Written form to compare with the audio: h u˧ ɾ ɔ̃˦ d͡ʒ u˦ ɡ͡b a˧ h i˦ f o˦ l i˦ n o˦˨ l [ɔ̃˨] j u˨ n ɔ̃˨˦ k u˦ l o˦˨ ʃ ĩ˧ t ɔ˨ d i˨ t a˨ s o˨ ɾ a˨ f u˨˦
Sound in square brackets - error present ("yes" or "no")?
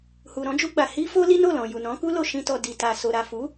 no